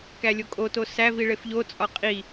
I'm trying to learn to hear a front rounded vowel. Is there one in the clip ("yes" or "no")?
no